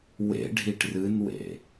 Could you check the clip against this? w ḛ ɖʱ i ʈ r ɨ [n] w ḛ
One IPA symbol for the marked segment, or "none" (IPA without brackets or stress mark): n